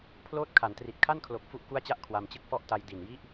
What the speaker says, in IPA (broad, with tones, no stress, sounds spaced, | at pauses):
pʰ l oː˦˥ t̚ kʰ a˩˦ n t r i˨˩ t̚ kʰ a˥˩ n kʰ l o˨˩ k̚ f u˥˩ ʔ k u˥˩ a̯ t͡ɕ a˥˩ ʔ kʰ w a˧ m t͡ɕ ɯ˥˩ k̚ f ɔ˥˩ ʔ t a˧ j d i˨˩ n j i˦˥ ʔ